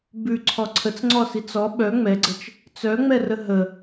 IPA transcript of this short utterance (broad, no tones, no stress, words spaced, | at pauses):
bʉǀʰɔ ǀʰət͡sŋ͡ǀɔsit͡s ɔ ɓœ ŋ͡mɛɡ͡ǀət͡ʃ | t͡sœŋ͡mɛrə ɦə